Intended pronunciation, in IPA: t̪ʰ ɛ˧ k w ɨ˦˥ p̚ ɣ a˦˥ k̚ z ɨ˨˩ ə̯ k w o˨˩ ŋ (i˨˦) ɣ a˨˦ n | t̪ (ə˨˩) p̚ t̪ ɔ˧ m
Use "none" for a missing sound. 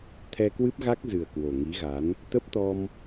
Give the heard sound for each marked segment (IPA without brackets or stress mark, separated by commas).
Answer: i˨˦, ə˦˥